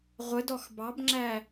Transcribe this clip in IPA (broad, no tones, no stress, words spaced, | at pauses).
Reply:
ʁʷə dɔxbɑbŋ͡ǁæ